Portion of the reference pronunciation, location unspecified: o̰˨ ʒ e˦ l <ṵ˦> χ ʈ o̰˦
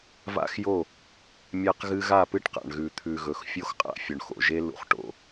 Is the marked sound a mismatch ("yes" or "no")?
no